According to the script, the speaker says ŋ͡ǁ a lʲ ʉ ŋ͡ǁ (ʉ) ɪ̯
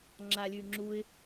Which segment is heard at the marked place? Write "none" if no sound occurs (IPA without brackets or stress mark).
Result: u